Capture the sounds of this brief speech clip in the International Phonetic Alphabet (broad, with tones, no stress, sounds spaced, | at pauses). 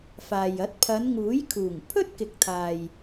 f aː˨ j ɐ˨˥ t̚ pʰ ɐ˨˧ n ŋ uː˨˥ j kʰ uː˨˩ ŋ pʰ ɵ˥ t̚ k ɪ˨ k̚ t̪ʰ aː˨ j